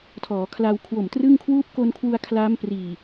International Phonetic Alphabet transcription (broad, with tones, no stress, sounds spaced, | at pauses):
tʰ ɔː˩˦ kʰ l a˧ w kʰ w o˨˩ m t r ɯ˥˩ ŋ kʰ w uː˦˥ p̚ k o˧ n kʰ w u˧ a̯ kʰ l aː˦˥ m p r iː˨˩